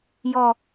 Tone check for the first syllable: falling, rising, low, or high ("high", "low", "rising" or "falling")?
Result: low